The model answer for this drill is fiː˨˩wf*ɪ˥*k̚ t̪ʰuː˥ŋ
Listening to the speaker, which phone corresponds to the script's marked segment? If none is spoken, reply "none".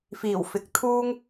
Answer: ɪ˨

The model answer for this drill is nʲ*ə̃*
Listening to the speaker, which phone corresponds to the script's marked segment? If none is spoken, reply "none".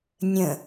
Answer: ə̃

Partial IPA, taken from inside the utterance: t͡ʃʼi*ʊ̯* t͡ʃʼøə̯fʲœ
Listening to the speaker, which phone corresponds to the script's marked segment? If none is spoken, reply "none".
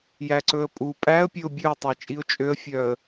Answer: ʊ̯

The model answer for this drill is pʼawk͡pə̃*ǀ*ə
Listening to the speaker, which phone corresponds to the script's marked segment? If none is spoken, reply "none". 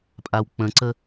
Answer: ǀ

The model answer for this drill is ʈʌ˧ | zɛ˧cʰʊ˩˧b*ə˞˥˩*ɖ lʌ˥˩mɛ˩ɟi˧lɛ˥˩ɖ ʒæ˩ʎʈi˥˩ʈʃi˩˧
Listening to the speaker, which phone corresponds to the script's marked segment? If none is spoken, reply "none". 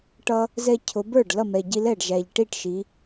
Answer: ə˞˥˩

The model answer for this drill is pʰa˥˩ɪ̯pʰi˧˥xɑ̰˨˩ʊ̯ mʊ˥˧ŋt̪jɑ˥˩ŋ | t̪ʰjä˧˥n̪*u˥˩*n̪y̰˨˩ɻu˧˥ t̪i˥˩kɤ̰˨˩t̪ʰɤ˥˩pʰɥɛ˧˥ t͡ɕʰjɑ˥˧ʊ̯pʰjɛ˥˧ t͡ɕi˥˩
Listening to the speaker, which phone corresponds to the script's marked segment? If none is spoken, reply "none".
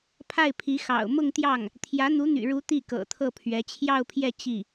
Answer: u˧˥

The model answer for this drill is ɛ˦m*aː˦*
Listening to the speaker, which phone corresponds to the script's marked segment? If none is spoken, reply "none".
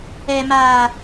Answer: aː˦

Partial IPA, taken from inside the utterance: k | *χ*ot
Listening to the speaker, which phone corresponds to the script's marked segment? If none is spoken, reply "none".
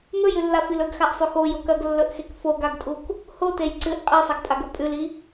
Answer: h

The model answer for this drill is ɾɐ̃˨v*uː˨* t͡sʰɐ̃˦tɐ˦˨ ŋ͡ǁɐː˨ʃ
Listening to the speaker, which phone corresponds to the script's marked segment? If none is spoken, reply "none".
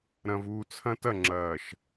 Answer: uː˨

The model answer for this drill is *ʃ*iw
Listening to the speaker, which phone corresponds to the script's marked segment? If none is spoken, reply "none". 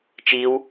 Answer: t͡ʃ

